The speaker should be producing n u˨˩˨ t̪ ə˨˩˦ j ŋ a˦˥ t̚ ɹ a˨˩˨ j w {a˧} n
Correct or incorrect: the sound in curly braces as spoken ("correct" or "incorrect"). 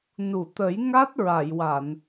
incorrect